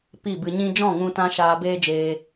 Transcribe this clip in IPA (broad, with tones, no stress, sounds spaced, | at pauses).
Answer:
p i˦˨ b ɨ˧ ɲ ĩ˦ d͡ʒ ɔ̃˦˨ ŋ ũ˧ t ã˦ ʃ aː˧ b eː˦ d͡ʒ eː˧